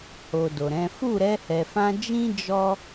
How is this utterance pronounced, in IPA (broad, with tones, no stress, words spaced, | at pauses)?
ho˨ do˨ɾɛ̃˨˦ fu˦˨ɾɛ˧hɛ˨fã˧ d͡ʒĩ˦ d͡ʒɔ˦